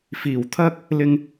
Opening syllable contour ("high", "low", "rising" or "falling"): low